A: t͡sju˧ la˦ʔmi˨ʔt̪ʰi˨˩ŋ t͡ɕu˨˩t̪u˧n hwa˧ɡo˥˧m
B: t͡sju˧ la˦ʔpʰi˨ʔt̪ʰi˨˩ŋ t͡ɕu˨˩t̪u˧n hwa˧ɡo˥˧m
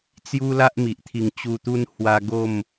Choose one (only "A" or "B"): A